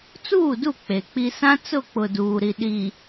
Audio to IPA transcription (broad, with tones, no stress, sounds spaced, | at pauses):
t͡s uː˦˨ d u˦˨ k͡p e˨ k͡p i˦ s ã˦ t͡s ʊ˦˨ k͡p ʊ˨ d uː˨ ɾ i˨ ɗ i˨